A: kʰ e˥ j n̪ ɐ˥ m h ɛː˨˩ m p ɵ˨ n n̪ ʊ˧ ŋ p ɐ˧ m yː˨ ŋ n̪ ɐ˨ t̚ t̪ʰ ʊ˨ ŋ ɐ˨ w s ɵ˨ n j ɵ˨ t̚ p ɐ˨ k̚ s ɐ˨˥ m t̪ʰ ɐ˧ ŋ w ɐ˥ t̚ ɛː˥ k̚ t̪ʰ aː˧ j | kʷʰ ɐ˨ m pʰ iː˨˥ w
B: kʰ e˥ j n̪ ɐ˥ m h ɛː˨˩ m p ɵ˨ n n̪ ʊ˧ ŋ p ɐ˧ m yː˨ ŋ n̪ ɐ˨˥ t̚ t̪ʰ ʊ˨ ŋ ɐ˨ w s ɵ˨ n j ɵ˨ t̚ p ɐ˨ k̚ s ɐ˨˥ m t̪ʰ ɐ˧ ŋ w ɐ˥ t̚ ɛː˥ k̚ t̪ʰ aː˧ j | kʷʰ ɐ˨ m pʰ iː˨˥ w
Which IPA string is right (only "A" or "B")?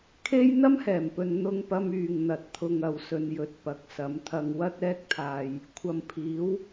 A